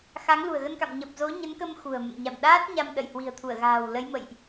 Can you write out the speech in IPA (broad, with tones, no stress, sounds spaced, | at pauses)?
x a˨˦ ŋ l ṳ˨˩ ə̯ ɣ ə˧ n k a̰˧˨ m ɲ ə˨˩ p̚ z o˨˦ ɲ ə˨˦ n k ə˧ m x ṳ˨˩ ə̯ m ə̰˧˨ m ɲ a̰˧˨ m ɗ aː˦˥ t̚ ɲ a˧ m ɗ ə̰˧˨ j h w i̤˨˩ ə̯ t̪ʰ u˧˩ ə̯ ɣ a̤ː˨˩ w l ə˨˦ j m ə̰˧˨ j ʔ